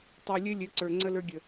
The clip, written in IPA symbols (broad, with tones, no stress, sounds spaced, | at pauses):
tˤ ɯ˨ lʲ ɘ˦ lʲ ɘ˨˦ ǀ ə˞˨ ŋ͡ǀ ə˦ l ə˞˦ ɡʲ ə˨